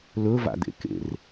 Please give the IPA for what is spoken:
lɵva̰d̪ḛkḛr

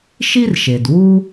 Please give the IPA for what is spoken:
ʃi˥rʃe˩d wu˥

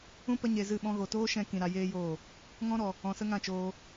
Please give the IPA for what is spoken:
ũ˦ pə˦ɲe˧zɨ˦˨ ɓɔ̃˧ɣo˨toː˦ʃɛ̃˧ kĩ˨ɾa˧ jeː˦joː˦˨ | ŋɔ̃˦ɾɔ˨ | ɔ̃˨sə˦ŋã˦˨ t͡ʃoː˧

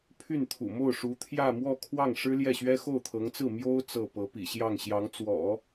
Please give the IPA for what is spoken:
pʰy˥˩nt̪ʰṵ˨˩mo˥˩ʊ̯ ʂu˧˥t̪ʰjä˥˧mwɔ˥˧ kʰwɑ˥˩ŋʂɻ̩˥ ljɛ˥˩ɕɥɛ˥ xo˥˩ʊ̯t̪ʰɤ˧˥ŋt͡sɹ̩˥˩ mjo˥ʊ̯ t͡sɤ˥˩ pɤ˧˥pḭ˨˩ɕjɑ˥˩ŋ ɕjɑ˧˥ŋt͡swɔ̰˨˩˦

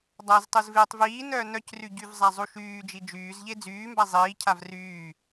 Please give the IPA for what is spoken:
dˤaztˤuz veːtˤviːnœː nœcry ɟyvzˤa zˤuʃyːd͡ʒi d͡ʒyːzʎe d͡zyːmba zˤiːcʰav ryː

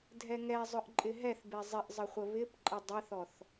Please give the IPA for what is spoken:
dʱɛŋɛzˤʊʔ ǃʼɪɦɛθbe zˤɪʔzˤə χʷəβɪpǃʼə dˤɪθɔθ

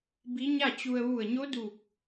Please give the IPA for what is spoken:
bi˧˥ɲa˥˨t͡ɕu˧ə̯ ʋu˧˩ə̯ɲo˧˥duː˧˩k̚

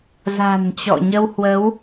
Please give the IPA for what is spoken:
za̤˨˩nt͡ɕɔ̰˧˨ ɲə˧whwə˨˦w

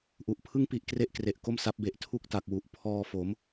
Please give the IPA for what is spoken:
ʔu˨˩ʔpʰɯ˥˩ŋpi˦˥ʔ kre˥˩ʔkre˨˩ʔko˥˩m sa˦˥p̚be˨˩ʔ tʰu˥˩k̚ta˨˩k̚wu˨˩ʔ pʰɔː˧ fo˩˦m

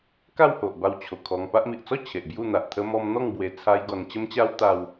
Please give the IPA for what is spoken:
ka˥˧who˨ʔba˧w t͡ɕʰo˨˩kʰɔ˧ŋ pa˦ʔmi˨ʔ t͡sɔ˥˧ t͡ɕʰe˨ʔbju˥˧n̪a˨ʔ t̪ʰə˧mɔ˧m n̪ɔ˥˧ŋbwe˧ t͡sʰa˦jɡɔ˧n t͡ɕə˦mt͡ɕa˦wt̪a˧w

